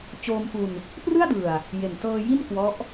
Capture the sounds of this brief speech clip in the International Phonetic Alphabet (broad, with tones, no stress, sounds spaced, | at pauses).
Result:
t͡ɕ oː˧ m f u˧ n | p r ɯ˥˩ a̯ d ɯ˨˩ a̯ | j e˨˩ n t ɤː˧ j i˥˩ n k w ɔ˦˥ ʔ